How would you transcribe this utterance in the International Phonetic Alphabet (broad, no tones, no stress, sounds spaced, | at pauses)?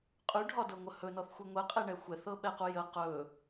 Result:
qʼ ʉ ɖʱ ɒ d ɤ ŋʷ ə h ɵ n ɔ θ xʷ i ŋʷ ɛ qʼ e ɳ ɛ xʷ ɛ θ ɤ ɓ ɛ q u j ə q ɵ